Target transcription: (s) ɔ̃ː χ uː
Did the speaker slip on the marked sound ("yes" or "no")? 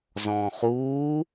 yes